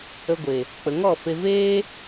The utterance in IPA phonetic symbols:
ə˧ɡʷe˨ | k͡pə˨ŋɔ˦˨fe˧ veː˦

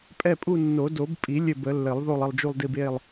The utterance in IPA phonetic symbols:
pʼɛ˦˨pʼu˦˨nːo˨˩˦ do˨˩˦bpʼi˨˩˦ lʲɘ˦˨bə˨˩˦lːɘ˨˩˦lˠ ðo˦˨lˠə˦˨lˠd͡ʒu˦˨lˠdi˦˨b e˦˨lˠ

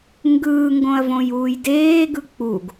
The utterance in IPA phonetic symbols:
ŋɡɯːŋɡõɐ̯ võjuːjdeːɡɯ k͡puɡ

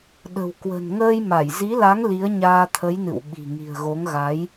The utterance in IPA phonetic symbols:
ɗə̤˨˩wkwə̤˨˩n ŋəː˧jma˧˩j zi˨˦la˨˦ŋ li˨˦ə̯ɲaː˧t̪ʰə˨˦jnɨ̰˧˨w ɓi̤˨˩ŋi̤˨˩ə̯ɣo˨˦ŋ ɣa˨˦j

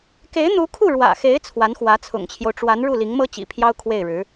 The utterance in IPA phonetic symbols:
ke˧˥ɪ̯n̪u˧˥kʰu˥˩ ɻwä̰˨˩xe˧˥ɪ̯ t͡sʰwa˧˥nxwä˧˥t͡sʰʊ̰˨˩ŋt͡ɕʰjo˦ʊ̯ ʈ͡ʂwa˧˥nɻu˥˩ li˧˥ŋmɤ˥t͡ɕḭ˨˩pʰjɑ˥ʊ̯ kʰwe˥˩ɪ̯ɻɻ̩˧˥

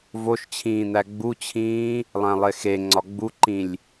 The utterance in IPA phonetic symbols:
voʃt͡ɕʰĩːn̪æ ɡ͡but͡ɕʰĩː | lˠæ̃lˠexeŋ͡ǀɒ ɡ͡buǃĩlʲ

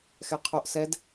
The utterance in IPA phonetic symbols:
xɛqʰoʔ sɛd

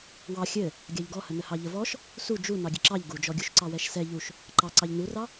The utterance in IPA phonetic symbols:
wɑ xʲɘ | ɡʲɑʎɡɔhənə hɑʎəvɔʃ | su d͡ʒu nɑɡʲɘǁɑʎ ɡud͡ʒɔɡʲuʃ ǀɑwɛʃsɛ ʎuʃ | ǃɑ ǀɑʎnurɑ

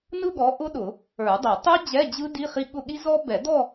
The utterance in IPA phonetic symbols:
nɯ˥˧ɠɔ˨˦ʔʊ˦˥ ɗʊ˨˩˦ | ə˞˨˩˦dˤʊ˨˩˦ tˤu˦˥ d͡ʑɛ˧˥˧d͡ʑɯ˦˥ di˧˥˧χi˦˥ ɠʊ˥˧ ɠi˦˥ zɔ˦˥ bɛ˨˩˦dɔ˥˧

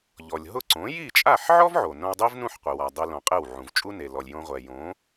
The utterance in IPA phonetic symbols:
ʎɔ˩lʲ ɦʊ˥˩ǀõ˩˥ ji˥˩t͡ʃʼa˥˩ħ ʕɔ˥vʕo˩ nõ˧wdˤi˥vnũ˥˩ħ qʷi˩ wa˩dˤe˧lõ˩ qʼe˥˩wʕũ˩v t͡ʃʼu˥ne˩lɔ˩lʲ jõ˧ʁʷɛ˩ jõ˩˥

